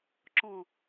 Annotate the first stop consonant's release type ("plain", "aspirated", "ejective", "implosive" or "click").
click